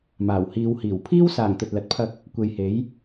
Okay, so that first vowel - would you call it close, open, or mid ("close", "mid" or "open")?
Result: open